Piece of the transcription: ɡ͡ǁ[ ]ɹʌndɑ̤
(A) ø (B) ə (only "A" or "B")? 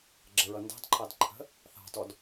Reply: B